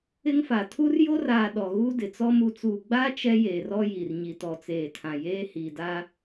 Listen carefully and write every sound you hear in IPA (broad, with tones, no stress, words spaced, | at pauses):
ɪ˦ŋfa˨ tʰu˦rjo˦raː˨ ɗɔ˨ɣu˦ dɪ˨t͡sɔ˦ mu˨t͡suː˨ɡ͡baː˦ t͡ʃɛ˦jeː˨rɔ˦ ji˨rɲi˨ tɔ˨t͡seː˨tʰã˨ jeː˦hi˨da˦